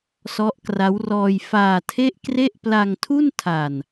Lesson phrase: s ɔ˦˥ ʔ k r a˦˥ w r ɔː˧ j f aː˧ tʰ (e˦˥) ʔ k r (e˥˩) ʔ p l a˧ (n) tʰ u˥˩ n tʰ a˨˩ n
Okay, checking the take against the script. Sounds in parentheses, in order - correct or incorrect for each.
incorrect: e˥˩, correct, incorrect: ŋ

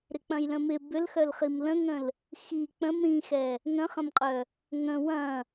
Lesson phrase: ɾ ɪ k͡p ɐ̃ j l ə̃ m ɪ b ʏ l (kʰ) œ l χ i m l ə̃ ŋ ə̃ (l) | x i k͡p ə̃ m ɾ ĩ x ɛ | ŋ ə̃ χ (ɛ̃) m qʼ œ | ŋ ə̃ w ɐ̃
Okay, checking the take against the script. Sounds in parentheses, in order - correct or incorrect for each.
incorrect: x, correct, incorrect: ə̃

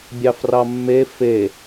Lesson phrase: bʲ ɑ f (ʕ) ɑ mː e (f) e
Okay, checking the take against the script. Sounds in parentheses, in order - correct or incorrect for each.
incorrect: r, correct

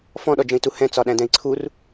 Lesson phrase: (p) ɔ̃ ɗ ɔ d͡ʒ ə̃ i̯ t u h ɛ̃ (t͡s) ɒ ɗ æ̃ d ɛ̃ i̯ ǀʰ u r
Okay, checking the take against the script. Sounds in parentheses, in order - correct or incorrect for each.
incorrect: f, correct

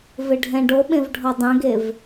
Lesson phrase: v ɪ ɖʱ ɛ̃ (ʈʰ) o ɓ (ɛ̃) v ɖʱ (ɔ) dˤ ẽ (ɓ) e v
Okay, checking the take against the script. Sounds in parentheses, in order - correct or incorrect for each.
incorrect: ɖ, incorrect: ẽ, correct, incorrect: ɡ

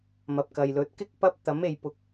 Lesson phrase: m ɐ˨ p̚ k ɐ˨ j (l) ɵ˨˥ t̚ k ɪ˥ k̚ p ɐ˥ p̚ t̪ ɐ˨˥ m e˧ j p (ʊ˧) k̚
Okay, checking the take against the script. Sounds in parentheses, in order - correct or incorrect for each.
correct, correct

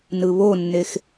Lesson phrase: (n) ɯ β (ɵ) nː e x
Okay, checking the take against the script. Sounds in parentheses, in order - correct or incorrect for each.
correct, incorrect: o

